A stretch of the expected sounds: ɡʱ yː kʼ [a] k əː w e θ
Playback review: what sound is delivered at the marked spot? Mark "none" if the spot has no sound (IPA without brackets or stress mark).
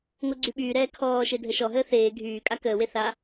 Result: a